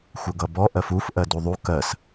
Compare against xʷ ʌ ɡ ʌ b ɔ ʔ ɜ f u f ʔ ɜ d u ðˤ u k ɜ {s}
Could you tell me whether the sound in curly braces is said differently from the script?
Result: no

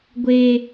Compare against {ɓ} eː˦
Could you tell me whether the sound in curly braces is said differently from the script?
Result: yes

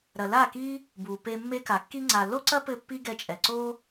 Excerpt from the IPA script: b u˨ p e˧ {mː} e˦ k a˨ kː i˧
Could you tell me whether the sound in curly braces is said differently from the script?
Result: no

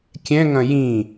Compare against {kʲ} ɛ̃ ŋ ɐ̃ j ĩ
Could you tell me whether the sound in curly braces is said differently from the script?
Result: no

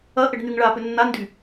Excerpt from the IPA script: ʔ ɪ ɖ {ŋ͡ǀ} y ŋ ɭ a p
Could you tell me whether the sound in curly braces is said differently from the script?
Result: yes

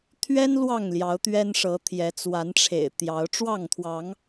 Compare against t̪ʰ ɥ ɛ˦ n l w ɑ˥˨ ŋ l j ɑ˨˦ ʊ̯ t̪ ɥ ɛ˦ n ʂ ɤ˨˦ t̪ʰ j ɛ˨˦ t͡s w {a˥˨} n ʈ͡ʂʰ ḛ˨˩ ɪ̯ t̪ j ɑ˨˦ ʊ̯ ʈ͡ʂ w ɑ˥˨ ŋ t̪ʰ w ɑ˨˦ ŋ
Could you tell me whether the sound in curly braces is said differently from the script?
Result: yes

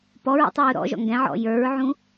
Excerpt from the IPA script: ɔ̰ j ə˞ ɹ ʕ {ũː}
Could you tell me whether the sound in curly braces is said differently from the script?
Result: yes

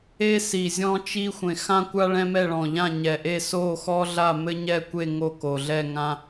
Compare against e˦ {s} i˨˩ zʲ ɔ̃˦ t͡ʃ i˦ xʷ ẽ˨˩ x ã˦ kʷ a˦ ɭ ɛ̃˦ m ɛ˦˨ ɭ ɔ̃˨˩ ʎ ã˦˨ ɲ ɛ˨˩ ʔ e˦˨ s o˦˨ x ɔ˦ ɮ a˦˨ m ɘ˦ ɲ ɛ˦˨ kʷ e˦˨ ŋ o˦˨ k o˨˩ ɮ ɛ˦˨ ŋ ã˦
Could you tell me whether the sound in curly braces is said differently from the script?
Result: no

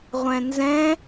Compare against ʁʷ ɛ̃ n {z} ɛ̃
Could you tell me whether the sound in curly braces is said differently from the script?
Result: no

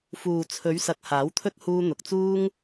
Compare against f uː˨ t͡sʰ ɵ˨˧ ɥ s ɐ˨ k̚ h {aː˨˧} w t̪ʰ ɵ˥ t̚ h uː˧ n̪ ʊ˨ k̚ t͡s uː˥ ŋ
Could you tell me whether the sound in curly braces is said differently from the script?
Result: yes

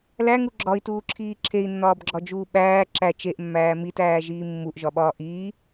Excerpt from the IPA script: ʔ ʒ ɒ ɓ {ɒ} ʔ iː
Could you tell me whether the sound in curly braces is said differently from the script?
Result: yes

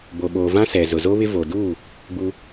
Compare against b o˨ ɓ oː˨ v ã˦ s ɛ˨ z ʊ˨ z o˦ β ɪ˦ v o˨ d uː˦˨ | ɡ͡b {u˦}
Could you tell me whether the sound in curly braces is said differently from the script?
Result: no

